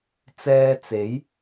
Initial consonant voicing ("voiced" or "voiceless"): voiceless